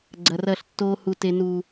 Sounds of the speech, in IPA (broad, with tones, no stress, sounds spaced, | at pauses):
ɡ͡ǀ ɐ˨ r ɐ˦˨ ɬ tː oː˦ h u˨ t e˨ n uː˨